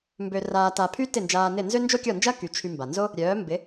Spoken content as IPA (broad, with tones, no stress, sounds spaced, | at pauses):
m b ø˧ r aː˧ t a˧ pʰ y˥ t ɪ˥˩ n d͡ʒ aː˧ n ɪ˥˩ n z ø˥ n d͡ʒ o˥ kʲ ɔ˥˩ n d͡ʒ ɐ˥ k y˩˥ t͡ʃʰ y˧ m b a˩ n z o˥ | ɾʲ œː˩˥ m b ɪ˩˥